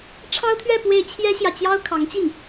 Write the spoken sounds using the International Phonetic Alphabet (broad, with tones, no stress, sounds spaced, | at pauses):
ʈ͡ʂʰ ɑ˥ ʊ̯ t̪ʰ ɥ ɛ˥˧ p w e˥˩ ɪ̯ t͡ɕʰ j ɛ˥ ɕ j ä˨ t͡ɕ j ɑ˥ ʊ̯ kʰ ɑ˧˥ ŋ t͡ɕ i˥˩ ŋ